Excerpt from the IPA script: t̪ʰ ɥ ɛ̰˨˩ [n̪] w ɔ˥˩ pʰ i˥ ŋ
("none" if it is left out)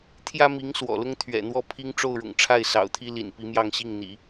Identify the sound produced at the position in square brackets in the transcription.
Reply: n̪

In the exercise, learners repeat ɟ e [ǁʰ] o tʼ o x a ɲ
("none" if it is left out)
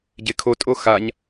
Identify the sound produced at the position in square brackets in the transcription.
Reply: kʰ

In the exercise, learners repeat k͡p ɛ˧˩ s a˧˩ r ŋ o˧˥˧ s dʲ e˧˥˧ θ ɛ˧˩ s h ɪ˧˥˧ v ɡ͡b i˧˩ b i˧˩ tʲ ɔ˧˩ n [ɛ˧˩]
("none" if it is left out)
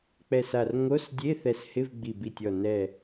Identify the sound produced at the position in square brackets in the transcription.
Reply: ɛ˧˩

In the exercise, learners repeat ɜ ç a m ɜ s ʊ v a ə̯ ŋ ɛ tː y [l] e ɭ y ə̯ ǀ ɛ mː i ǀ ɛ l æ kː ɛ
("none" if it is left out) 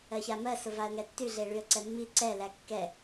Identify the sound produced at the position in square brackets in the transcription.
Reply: ɮ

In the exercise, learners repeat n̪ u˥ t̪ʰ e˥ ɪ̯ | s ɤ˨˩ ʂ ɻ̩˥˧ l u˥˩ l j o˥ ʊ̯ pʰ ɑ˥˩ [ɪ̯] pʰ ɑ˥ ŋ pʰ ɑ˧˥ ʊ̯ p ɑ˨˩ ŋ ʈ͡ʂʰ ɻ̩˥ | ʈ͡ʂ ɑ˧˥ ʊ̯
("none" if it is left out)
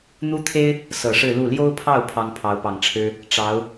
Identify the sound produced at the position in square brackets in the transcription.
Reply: ʊ̯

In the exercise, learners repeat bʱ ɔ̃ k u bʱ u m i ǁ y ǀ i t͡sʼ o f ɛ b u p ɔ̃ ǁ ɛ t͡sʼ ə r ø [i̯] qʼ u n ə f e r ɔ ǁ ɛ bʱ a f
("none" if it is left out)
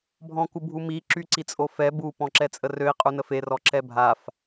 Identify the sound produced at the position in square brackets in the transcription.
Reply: i̯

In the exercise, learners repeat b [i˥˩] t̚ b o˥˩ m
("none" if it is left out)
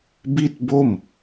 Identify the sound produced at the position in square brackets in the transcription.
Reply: i˥˩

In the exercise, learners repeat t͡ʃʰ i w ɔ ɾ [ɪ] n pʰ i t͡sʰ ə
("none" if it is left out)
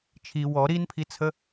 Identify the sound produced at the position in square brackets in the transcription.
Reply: i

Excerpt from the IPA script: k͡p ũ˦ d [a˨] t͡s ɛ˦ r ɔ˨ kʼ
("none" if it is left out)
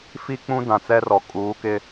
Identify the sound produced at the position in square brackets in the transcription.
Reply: ã˨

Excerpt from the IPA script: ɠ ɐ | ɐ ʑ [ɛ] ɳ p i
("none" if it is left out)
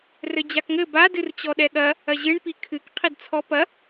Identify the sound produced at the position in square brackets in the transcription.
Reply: ɨ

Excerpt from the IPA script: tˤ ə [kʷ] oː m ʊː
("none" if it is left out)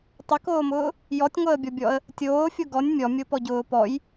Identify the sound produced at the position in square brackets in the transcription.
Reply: k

